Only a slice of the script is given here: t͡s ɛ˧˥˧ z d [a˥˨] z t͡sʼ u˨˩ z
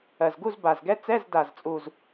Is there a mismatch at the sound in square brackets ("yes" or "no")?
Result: yes